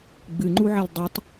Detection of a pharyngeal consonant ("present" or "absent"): present